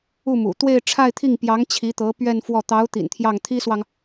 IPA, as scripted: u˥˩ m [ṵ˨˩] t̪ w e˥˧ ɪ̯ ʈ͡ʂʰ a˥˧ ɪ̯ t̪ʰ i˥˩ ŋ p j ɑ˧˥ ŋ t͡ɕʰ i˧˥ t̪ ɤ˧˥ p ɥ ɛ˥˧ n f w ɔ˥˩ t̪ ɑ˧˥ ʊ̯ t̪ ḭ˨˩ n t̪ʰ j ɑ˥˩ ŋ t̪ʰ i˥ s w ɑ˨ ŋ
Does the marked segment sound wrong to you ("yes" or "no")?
no